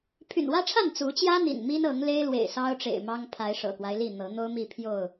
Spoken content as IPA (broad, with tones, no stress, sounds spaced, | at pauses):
pʰ y̰˨˩ n w ä˦ ʈ͡ʂʰ a˥˨ n t͡s u˨˦ t͡ɕ j ä˦ n̪ ḭ˨˩ n m i˦ n ɤ˨˦ ŋ l e˦ ɪ̯ l w ḛ˨˩ ɪ̯ s ɑ˦ ʊ̯ ʈ͡ʂ ḛ˨˩ ɪ̯ m ɑ˦ ŋ pʰ a˨˦ ɪ̯ ʂ ɤ̰˨˩ k w a˦ ɪ̯ l i˥˨ n̪ ɤ˨˦ n̪ o˦ ʊ̯ m i˥˨ pʰ j o˥˨ ʊ̯